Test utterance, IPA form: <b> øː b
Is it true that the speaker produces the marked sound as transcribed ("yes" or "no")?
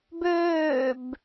yes